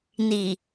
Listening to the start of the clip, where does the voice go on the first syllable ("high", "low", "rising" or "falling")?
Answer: low